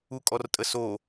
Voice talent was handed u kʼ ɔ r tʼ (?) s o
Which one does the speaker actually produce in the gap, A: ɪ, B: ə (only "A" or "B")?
B